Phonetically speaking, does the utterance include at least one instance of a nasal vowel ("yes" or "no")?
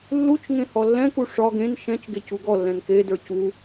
yes